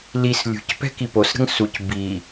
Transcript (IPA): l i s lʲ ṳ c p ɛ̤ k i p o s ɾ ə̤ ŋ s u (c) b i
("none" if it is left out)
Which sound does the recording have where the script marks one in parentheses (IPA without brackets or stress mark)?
c